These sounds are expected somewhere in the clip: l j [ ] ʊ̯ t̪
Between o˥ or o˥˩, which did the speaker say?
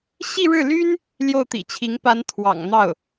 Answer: o˥˩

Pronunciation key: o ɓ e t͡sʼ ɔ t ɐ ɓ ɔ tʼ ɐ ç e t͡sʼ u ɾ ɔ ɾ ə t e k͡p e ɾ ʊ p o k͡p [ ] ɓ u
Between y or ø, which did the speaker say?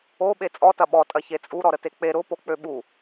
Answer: ø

